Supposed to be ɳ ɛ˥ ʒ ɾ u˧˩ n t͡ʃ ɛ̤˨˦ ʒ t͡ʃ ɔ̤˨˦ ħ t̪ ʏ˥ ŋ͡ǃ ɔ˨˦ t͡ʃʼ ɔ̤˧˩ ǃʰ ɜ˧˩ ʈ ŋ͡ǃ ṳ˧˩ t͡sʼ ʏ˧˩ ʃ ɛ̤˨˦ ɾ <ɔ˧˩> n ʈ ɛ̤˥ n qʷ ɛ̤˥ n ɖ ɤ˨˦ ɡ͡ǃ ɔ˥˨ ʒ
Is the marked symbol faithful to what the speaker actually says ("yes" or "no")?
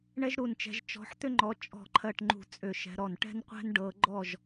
yes